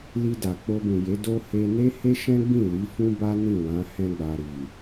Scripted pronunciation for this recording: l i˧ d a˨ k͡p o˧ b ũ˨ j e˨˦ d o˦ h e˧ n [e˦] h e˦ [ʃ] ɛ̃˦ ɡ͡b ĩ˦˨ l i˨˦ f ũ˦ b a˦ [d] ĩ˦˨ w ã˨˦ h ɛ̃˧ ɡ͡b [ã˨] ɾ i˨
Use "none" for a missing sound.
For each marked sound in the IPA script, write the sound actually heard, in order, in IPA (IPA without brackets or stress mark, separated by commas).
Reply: e˦, ʃ, n, a˨